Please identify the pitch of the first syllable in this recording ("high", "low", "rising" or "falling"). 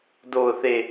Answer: low